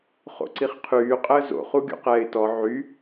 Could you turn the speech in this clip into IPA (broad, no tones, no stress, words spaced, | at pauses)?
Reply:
χo̰ǀiχqʰyː qʼəːzo̰ χuɡʲṵqɛːɪ̯tɔ ʕy